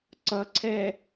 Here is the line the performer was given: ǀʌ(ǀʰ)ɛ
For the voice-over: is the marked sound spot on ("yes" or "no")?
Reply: yes